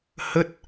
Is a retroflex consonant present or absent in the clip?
absent